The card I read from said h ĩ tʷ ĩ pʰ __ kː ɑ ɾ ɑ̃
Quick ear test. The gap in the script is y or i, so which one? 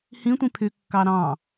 y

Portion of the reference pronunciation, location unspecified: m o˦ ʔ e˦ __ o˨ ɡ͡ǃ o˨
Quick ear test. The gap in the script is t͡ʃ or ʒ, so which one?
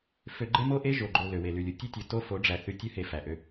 ʒ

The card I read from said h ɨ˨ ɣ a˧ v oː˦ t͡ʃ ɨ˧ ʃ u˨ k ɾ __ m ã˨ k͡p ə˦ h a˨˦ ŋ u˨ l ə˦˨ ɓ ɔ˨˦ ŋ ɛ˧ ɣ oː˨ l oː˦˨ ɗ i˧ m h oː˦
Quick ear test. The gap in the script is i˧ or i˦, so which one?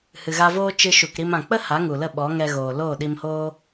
i˧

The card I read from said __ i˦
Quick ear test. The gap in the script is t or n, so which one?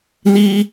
n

